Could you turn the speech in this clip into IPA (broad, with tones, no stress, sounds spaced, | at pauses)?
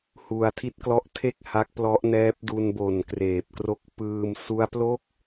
h u˧ a̯ tʰ i˥˩ t̚ k l ɔ˥˩ ʔ tʰ e˥˩ k̚ h a˦˥ k̚ p l ɔ˦˥ ʔ n ɛː˦˥ p̚ d u˧ n b o˨˩ n k r eː˨˩ p̚ k r o˦˥ k̚ p ɯː˧ m s u˦˥ a̯ p l o˥˩ k̚